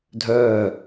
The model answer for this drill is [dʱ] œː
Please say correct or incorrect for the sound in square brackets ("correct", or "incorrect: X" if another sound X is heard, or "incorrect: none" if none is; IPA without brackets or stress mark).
correct